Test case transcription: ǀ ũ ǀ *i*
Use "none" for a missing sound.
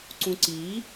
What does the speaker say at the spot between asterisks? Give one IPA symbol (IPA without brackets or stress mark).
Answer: i